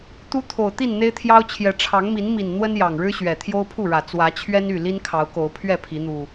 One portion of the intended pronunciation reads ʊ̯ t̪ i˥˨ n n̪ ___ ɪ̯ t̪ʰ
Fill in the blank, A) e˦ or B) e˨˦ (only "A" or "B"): A